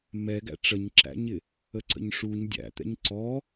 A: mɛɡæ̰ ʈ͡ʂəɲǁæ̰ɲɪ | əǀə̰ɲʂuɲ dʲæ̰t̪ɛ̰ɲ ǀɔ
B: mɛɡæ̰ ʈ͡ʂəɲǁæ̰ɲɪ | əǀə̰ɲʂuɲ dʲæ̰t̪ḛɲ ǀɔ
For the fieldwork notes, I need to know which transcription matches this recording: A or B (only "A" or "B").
A